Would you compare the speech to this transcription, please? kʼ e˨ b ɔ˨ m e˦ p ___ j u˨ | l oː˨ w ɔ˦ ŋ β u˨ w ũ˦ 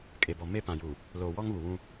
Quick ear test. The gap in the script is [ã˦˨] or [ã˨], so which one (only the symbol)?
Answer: ã˨